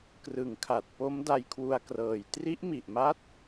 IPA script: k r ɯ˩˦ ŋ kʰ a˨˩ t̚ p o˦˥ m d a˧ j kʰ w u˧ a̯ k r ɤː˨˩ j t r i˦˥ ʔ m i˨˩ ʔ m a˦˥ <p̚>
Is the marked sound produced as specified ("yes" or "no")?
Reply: no